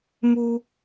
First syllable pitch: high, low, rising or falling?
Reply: high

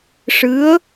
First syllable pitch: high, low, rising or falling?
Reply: rising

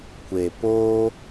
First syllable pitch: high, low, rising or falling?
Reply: low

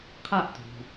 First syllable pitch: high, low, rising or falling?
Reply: falling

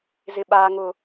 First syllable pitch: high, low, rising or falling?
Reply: low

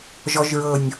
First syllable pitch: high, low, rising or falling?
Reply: low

